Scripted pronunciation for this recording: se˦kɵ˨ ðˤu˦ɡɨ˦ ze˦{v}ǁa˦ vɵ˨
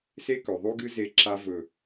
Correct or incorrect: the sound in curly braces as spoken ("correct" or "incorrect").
incorrect